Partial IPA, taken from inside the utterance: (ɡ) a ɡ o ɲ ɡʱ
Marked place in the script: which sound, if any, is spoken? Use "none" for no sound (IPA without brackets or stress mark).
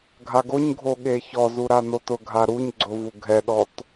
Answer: ɡʱ